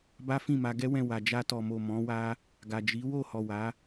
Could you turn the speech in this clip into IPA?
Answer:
b a˦ f ĩ˦˨ m a˧ ɡ ɛ˦ w ɛ̃˦˨ w a˨ d͡ʒ a˧ t ɔ˨ m o˨ m ɔ̃˨˦ w a˦ | ɡ a˨ d͡ʒ i˨˦ w o˦˨ h ɔ˨ w a˨˦

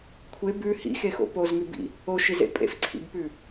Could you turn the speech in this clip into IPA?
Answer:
kʷʰ e b ʉ h ḭ x e x o̰ p o z ŋ ʉ b ḭ | o ʃ i z ḛ pʼ ḛ f ǀʰ ḭ b p ʉ

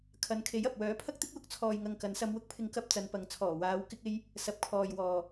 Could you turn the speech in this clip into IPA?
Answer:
kʰ ɐ˨˧ n kʰ e˨˥ j ɐ˨ p̚ w œː˨˥ pʰ ɐ˥ k̚ t̪ ɪ˥ k̚ w ʊ˧ k̚ t͡sʰ ɔː˨ j ŋ ɐ˨ ŋ k ɐ˨˥ n s ɐ˧ m w ʊ˥ k̚ pʰ ɪ˧ ŋ k ɐ˧ p̚ t͡s ɐ˨˧ n p ɐ˨ ŋ t͡sʰ ɔː˨˩ w aː˨˧ w k ɪ˧ k̚ e˧ j | s ɐ˨˥ p̚ kʰ ɔː˨ j w ɔː˨

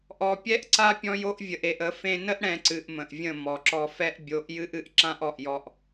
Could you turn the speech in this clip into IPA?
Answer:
ʔ ɔ˨ pʲ ɛ˦ ʔ ǀ a˦ pʲ ɔ̃˦ j o˦ ʔ vʲ ə˨ ʔ e˨ ʔ ə˨˦ f ẽ˧ n ə˦ ʔ ɽ ɛ̃˧ ǀ ɨ˨ ʔ m ə̃˨ ʔ vʲ ə̃˦˨ m ɔ˨ ǁ ɔ˧ f ɛ˦ ʔ bʲ o˨˦ ʔ j ɨ˦ ʔ ɨ˨ ʔ ǁ ã˦ ʔ ɔ˨ ʔ j ɔ˧ ʔ

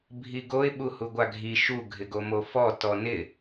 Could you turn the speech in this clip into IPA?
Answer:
bʱ i ɡ o ɪ̯ ɓ u h u ɡʷ a ɡʱ i ʃ u ɡʱ ɪ ɡ o m o f ɔ t ɔ n ɪ

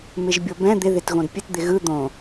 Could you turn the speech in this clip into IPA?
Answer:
m ɪ ʒ bʲ o b ɛ̃ d̪ ɪ ð ɪ t ɣ õ d pʲ ɘ t d̪ ɪ ɣ ɯ d̪ õ

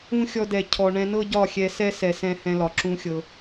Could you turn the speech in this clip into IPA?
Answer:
ũ˦ xʲ ɔ˧ d ɛ˨ cʰ ɔ˨ ɳ ɛ̃˧ n ɤ˦ ɟ ɒ˦˨ xʲ ɛ˧ s ɛ˦ s ɛ˨ s ɛ̃˧ h ɛ̃˧ l ɒ˨ ǁ ũ˦ xʲ ɤ˧

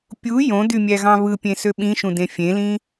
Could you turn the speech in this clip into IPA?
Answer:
pʲ u j õ d y mʲ æ ɣ ɑ̃ β ɯ pʲ ẽ s ø ɓ ĩ ʃ ũ d ẽ fʲ ẽ l ĩ

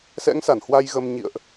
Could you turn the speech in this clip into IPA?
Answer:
s ɛ̰˧˥ ŋ s a˧˩ n h w a˧ j ɣ ə˧ m ɲ ḭ˧˨ ə̯ ʔ

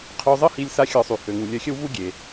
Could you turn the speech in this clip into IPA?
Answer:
qʰ ø˧ zˤ ə˦ h i˧ lʲ s a˦ xʲ ɔ˧ sˤ y˨ h ø˨ ŋ u˨ lʲ œ˧ xʲ ə˦ w v u˦ ɡʲ e˨

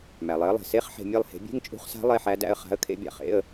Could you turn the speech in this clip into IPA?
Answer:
m æ˩ lˠ e˩˥ ə̯ lˠ e̤˩ s e˧˥˧ χ ħ e̤˧˩ mʲ e˥˧ lˠ h e̤˩˥ bʲ e̤˧˥˧ ŋ t͡ʃʼ ṳ˧˥ χ s a̤˧˥ lˠ e˧˥˧ ħ æ˧˥ d æ̰˥˧ ə̯ χ a̤˧˥ ə̯ kʰ ḛ˧˥ bʲ a̰˩ χ ḛ˧˥˧ ə̯

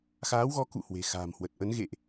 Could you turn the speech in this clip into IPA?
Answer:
x aː˨˦ w ɣ ɔ˨˦ k ṵ˧˨ h w e̤˨˩ x a̤ː˨˩ m h w ə˨˩ t̚ ʔ ə˨˦ n ɣ ḛ˧˨ ʔ

